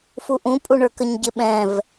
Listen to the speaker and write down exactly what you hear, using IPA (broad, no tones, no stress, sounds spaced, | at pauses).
f u ʔ ũ pʼ u ɳ ə˞ k ə ɲ ɟ ɪ ɓ ɛ̃ v